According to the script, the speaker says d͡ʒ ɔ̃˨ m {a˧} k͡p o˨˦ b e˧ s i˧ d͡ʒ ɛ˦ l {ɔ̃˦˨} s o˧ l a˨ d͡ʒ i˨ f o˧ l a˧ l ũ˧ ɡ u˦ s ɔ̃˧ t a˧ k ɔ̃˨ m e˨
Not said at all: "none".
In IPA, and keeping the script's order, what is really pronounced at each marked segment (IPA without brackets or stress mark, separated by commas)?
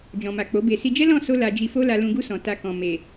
a˨, ɔ̃˦˨